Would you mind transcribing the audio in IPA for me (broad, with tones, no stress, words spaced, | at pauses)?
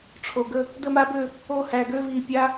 ʈ͡ʂʰo˧˩ɡə˥˧ | də˥˧ma˦˥bø˥˧ | o˦˥hæ˧˩ɡø˦˥ vi˧˩pʲa˦˥